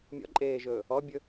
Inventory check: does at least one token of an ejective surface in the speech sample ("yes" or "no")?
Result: yes